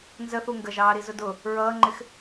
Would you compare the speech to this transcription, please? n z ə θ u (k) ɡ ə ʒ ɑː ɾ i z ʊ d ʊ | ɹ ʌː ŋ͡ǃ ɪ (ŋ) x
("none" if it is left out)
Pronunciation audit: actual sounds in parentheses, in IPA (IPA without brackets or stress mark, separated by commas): ŋ, none